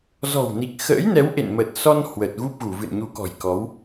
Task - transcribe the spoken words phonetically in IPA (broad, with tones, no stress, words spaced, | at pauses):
zɔ̤˨˩wni˨˩k̚xə̰ː˧˥j nɛ˨˦w ʔḛ˧˨nmə˨˩t̚sɔ˧n hwə˨˩t̚ɣu˦˥p̚ɣu˧˩ vɨ̰˧˨nɲu˨˦kɔ̤˨˩jkɔ˨˦w